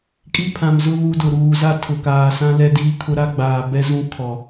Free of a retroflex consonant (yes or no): yes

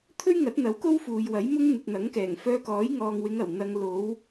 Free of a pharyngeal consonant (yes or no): yes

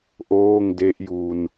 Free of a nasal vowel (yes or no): yes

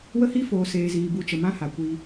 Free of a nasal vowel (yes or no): no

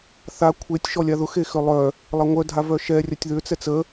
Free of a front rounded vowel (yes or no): no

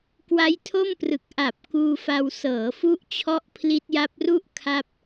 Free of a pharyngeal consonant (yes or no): yes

